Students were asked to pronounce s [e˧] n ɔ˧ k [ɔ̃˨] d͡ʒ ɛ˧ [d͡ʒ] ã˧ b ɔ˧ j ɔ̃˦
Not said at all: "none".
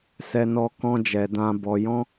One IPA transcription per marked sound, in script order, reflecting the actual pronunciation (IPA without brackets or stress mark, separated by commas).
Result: ɛ˧, ɔ̃˦, d